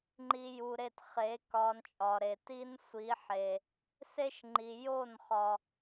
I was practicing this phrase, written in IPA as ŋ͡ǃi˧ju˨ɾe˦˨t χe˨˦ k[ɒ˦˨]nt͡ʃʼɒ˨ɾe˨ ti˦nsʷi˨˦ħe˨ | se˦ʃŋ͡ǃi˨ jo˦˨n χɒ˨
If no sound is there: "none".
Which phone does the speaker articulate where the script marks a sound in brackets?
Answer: ɒ˧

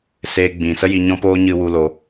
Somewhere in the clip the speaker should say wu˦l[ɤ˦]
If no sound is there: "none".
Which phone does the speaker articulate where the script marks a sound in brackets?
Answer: o˦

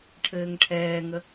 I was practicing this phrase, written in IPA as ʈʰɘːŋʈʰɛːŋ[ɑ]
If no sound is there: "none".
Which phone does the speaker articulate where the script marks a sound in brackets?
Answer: ə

